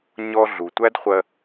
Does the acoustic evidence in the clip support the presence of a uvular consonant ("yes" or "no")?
yes